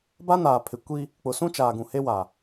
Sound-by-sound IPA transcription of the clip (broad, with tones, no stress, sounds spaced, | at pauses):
b a˦ n aː˨ pʰ ɪ˨ kʷ i˦ | k͡p ʊ˨ s ũ˦ t͡ʃ aː˨ ɡ ũ˨ h e˦ w a˨